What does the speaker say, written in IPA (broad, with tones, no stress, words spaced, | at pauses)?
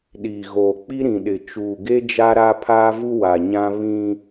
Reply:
ɗiː˨ɣoː˨k͡pi˦ ɾĩ˨ɗɪ˨ t͡ʃuː˨ɡe˦ d͡ʒa˦ɾa˦pʰaː˦vu˦ wa˨ɲã˦ βĩ˦